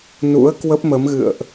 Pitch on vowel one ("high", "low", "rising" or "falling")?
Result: rising